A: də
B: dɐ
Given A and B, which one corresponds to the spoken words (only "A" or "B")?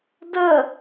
A